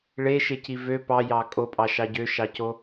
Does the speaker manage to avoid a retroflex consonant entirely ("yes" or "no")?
no